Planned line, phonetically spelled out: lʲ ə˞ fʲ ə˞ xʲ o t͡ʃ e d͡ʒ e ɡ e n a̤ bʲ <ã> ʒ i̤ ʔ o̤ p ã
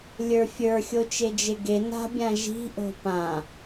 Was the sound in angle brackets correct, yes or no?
yes